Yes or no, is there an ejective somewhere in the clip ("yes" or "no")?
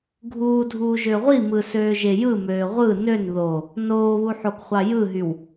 no